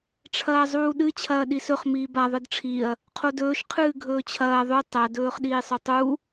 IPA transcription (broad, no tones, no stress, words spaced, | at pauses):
ʈ͡ʂʰɐːzˤuːɗɨ t͡ɕʰɐːɗisɵχ miːba ðˤɨdʈ͡ʂʰiɐ̯ | qʰodɵːʃ qʰɨːɡʱɵːt͡ɕʰɐː ðˤʉ tˤɐ dɵːχɗiːsˤɵtˤu